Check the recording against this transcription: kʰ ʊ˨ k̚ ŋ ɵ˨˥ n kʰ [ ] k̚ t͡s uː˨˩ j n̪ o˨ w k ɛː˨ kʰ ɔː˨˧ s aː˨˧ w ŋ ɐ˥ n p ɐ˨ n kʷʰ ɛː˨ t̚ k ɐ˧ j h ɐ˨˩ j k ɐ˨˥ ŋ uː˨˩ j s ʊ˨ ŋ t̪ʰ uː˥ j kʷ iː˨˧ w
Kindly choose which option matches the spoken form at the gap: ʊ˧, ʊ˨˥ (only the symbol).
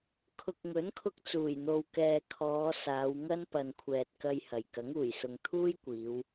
ʊ˧